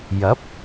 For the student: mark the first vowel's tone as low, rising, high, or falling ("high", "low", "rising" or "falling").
rising